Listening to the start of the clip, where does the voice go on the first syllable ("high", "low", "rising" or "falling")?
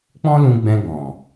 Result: high